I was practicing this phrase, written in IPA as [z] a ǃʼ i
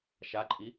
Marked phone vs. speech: incorrect: ʃ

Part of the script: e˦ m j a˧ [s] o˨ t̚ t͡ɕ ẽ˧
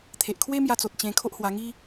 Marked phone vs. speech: incorrect: t͡s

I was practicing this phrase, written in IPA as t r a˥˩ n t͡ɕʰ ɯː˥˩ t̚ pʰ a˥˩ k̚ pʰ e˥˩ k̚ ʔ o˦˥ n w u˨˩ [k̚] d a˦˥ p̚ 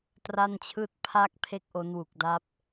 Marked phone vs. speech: correct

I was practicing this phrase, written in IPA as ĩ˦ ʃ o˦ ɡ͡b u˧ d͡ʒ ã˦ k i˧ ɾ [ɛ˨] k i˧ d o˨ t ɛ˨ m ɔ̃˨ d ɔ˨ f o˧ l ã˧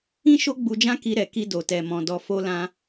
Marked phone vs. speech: correct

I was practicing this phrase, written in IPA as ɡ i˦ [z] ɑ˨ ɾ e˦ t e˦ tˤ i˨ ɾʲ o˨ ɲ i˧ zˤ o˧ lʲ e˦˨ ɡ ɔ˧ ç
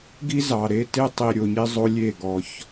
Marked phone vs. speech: correct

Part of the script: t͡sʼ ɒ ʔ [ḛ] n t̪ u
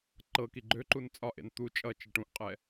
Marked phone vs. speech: correct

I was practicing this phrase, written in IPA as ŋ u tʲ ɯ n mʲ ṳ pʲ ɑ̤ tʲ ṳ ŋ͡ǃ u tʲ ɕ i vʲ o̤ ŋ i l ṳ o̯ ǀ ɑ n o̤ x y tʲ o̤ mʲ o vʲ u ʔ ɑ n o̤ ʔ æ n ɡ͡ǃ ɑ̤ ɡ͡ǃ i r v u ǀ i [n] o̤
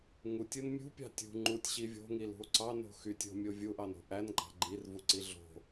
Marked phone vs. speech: incorrect: ɮ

